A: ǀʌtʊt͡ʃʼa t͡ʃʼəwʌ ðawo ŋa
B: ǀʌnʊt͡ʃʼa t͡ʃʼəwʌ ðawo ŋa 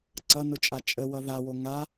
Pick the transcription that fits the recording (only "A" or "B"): B